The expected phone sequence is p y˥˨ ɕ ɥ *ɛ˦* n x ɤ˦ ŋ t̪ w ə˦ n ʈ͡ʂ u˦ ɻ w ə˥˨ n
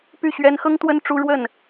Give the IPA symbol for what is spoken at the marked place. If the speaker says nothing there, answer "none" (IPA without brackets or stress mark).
ɛ˦